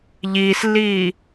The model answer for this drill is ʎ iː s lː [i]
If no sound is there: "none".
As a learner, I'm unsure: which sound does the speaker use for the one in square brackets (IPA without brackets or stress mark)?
iː